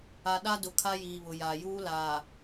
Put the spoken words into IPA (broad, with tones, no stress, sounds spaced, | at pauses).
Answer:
a˨ ɗ a˦ d ʊ˨ kʰ a˦ j iː˨ β ʊ˨ j a˨ j uː˦ l aː˨